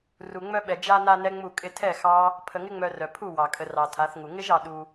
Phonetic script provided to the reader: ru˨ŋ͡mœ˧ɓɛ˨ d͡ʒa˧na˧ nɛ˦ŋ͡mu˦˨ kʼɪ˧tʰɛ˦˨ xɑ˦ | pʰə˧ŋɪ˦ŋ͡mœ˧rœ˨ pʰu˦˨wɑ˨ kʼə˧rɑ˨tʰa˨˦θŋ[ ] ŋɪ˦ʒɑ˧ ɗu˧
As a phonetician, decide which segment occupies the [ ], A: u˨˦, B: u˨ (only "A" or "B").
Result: B